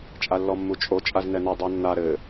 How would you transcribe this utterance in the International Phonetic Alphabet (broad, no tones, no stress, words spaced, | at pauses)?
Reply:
t͡ʃʼalːɔmːut͡ʃʼo t͡ʃʼaznɛnɛ dˤonːa ɾɘ